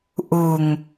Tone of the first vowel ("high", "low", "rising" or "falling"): low